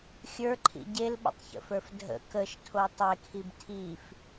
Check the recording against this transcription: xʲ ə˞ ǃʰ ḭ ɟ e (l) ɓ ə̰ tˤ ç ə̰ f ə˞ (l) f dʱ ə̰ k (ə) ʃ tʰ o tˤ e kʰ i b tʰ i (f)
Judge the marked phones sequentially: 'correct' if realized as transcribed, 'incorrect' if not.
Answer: correct, incorrect, correct, correct

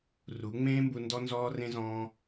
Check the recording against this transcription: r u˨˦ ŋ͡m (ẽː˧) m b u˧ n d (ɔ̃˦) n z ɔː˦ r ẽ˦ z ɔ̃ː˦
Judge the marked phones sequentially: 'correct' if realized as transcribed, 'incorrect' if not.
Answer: incorrect, incorrect

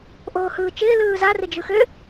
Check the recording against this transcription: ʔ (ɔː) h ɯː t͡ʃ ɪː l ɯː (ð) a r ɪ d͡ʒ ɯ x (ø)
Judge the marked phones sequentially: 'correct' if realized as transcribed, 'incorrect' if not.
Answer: incorrect, incorrect, correct

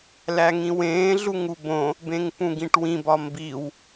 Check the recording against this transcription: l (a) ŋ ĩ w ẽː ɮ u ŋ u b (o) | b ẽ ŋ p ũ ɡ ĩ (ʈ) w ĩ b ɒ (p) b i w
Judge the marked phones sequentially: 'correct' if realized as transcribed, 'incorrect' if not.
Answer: incorrect, incorrect, correct, incorrect

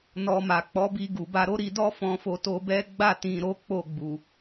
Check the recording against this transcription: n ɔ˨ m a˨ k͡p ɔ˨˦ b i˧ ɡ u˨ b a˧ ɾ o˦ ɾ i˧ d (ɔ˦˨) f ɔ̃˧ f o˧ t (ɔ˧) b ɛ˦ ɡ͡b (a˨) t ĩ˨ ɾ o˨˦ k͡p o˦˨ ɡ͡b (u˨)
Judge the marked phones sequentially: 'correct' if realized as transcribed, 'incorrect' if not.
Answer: incorrect, incorrect, incorrect, correct

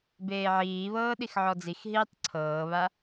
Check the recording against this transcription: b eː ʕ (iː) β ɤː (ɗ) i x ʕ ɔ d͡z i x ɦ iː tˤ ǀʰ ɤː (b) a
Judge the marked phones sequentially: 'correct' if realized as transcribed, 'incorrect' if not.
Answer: correct, correct, incorrect

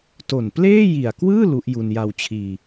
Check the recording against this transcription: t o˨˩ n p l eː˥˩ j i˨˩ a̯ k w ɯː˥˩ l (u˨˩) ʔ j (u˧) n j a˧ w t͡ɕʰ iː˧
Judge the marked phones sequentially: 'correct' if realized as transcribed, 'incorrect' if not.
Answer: incorrect, correct

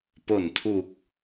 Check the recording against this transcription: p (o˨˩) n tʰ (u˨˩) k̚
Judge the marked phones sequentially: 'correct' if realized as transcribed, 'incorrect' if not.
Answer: correct, correct

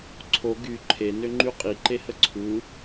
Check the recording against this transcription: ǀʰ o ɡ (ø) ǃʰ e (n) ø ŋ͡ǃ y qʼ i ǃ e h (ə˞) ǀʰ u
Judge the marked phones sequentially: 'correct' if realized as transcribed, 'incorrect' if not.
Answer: incorrect, correct, incorrect

